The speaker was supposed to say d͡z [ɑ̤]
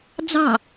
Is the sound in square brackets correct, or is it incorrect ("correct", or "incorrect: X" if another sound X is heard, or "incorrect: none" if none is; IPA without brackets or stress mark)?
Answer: correct